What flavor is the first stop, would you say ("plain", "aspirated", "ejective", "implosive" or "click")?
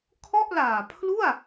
aspirated